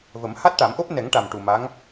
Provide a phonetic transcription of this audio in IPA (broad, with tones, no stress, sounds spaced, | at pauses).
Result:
v ə˨˩˦ m h a˦˥ t̚ ʈ a˨˩˦ m ʔ o˦˥ p̚ n ɛ˨˩˦ ŋ ʈ a˨˩ m ʈ u˨˩ m a˧˥ ŋ